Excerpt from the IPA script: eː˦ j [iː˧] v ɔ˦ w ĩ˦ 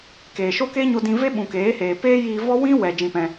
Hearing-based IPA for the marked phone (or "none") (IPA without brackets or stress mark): iː˧